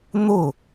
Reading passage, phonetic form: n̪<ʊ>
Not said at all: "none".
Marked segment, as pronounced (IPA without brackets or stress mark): ʊ